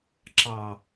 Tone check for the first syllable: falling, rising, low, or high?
low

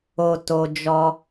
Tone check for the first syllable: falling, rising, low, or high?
high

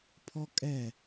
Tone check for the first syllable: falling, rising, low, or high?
high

